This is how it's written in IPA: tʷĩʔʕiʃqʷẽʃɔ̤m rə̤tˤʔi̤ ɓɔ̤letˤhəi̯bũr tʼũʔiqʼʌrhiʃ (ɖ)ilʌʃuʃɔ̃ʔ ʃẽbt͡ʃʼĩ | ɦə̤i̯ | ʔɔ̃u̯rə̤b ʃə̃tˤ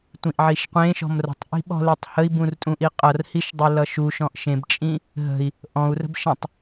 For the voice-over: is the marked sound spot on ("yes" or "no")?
no